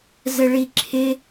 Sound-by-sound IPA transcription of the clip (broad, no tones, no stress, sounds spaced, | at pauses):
z ə ɭ i ǁʰ ɪ